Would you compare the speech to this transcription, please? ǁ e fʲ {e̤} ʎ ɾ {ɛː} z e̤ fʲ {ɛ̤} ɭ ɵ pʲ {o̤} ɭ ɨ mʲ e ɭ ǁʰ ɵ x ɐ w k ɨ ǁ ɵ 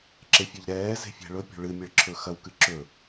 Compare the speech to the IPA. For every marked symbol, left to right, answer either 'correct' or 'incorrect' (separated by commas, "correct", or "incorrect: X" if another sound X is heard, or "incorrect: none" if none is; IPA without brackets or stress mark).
incorrect: e, correct, correct, correct